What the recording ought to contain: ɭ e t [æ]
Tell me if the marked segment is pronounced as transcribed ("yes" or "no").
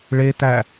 yes